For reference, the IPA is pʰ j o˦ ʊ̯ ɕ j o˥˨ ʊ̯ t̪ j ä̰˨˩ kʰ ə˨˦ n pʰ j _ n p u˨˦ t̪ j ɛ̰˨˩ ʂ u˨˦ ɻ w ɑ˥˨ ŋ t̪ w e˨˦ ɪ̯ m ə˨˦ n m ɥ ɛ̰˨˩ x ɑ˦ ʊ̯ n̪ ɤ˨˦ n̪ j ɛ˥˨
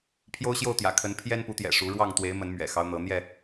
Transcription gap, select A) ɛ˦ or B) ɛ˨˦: A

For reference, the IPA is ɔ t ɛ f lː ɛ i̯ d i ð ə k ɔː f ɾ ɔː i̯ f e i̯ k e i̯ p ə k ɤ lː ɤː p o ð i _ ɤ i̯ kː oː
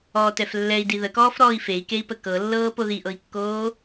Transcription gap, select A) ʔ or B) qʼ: A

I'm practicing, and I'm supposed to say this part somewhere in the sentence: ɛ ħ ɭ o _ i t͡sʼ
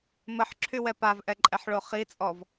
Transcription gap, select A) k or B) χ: B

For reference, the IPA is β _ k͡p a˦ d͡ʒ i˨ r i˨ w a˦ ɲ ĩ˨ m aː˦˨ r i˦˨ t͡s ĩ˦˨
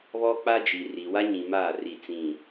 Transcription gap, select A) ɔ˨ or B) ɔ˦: B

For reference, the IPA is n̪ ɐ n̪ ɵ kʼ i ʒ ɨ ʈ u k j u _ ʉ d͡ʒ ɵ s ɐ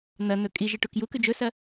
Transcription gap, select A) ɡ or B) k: B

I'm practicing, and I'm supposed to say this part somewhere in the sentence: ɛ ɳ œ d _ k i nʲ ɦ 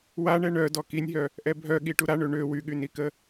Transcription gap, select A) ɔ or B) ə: A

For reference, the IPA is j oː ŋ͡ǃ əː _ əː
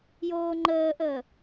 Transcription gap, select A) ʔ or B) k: A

